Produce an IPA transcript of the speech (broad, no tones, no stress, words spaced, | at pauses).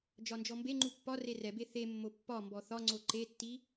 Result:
d͡ʒɒnd͡ʒɔmbeŋ͡ǃu pːɒ rerɛbe θe mːopːɒmbɔ θɒŋ͡ǀo ǃetːi